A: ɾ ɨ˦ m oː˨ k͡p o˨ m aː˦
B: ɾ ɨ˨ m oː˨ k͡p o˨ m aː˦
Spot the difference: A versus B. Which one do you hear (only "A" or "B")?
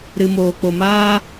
B